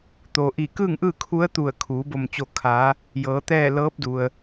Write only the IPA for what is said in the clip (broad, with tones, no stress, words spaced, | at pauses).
t̪oː˩ʔiː˧˩ kɯː˥˨ŋʔɯː˥˨ kʰu˧˥ə̯t̪u˧˩ə̯kʰuː˩˧ bo˧˩mt͡ɕo˧˩kʰaː˩˧ | jɤː˩˧t̪ɛː˥˨ lɤː˧˥p̚du˩ə̯